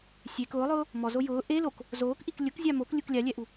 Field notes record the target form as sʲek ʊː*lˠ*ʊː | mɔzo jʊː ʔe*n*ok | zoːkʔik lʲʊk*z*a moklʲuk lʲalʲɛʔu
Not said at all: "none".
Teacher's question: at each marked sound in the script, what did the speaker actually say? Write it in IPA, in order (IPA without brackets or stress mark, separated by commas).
lˠ, l, zʲ